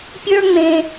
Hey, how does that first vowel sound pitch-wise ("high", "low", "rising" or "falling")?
high